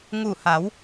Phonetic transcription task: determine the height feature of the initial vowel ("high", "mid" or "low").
high